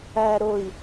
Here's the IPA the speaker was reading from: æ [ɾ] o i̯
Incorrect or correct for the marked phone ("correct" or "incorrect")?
correct